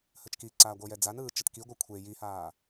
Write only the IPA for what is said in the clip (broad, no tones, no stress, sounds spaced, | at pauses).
h ə t͡ʃ k i ǀ aː ɡʷ ɤ j ɛ d͡z a n ɯː t͡ʃ ə t k i ɡʷ ɤ kʷʰ e j i h aː